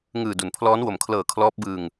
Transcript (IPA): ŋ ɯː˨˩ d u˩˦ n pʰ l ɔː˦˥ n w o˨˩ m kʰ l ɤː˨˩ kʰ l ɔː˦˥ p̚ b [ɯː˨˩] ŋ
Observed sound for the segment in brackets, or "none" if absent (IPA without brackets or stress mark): ɯː˧